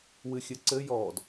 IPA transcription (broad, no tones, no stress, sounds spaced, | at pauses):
w ɨ xʲ ɘ ǀ ɘ j ɔ d